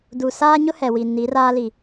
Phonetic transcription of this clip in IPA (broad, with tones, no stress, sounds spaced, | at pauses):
d u˨ s aː˦ ɲ ʊ˦ h ɛ˨ w i˨ n i˨˦ r aː˦ l i˨